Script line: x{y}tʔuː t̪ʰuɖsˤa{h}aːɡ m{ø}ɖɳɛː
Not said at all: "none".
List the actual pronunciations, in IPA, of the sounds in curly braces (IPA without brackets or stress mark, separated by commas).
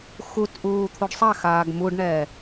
u, x, u